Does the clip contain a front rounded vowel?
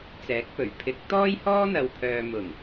yes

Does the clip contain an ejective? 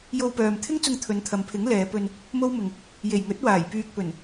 no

